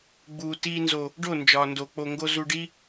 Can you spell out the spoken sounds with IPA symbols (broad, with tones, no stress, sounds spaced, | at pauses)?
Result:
ɡ͡b uː˨ t iː˧ n z o˨ | ɖ o˦˨ n d͡ʒ ɒː˨ n d o˨ k͡p o˨ ŋ ɡ o˧ z u˧ ɖ i˦